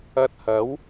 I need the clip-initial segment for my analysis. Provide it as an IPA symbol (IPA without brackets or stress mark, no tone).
ɐ